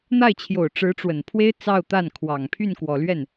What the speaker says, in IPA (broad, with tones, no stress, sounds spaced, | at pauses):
n̪ a˥˩ ɪ̯ t͡ɕʰ j o˨˩ ʊ̯ ʈ͡ʂ ɻ̩˧˥ ʈ͡ʂ w ə˨˩ n pʰ w e˥ ɪ̯ t͡s ɑ˥˧ ʊ̯ t̪ a˥˩ n kʰ w ɑ˨˩ ŋ pʰ y˥˩ n k w ɔ˨˩ l ɥ ɛ˥˩ n